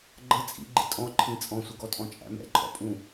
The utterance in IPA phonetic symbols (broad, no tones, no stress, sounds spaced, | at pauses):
ɡ͡ǃ ə t͡sʼ ḭ ɡ͡ǃ ɪ tʼ ɔ̃ ǃʰ ĩ t͡sʼ ɔ̃ sʷ ʌ ɡ ɔ tʼ ɔ̃ t͡ʃʼ æ̰ m ɛ̰ ǃʰ ɔ̰ pʼ ũ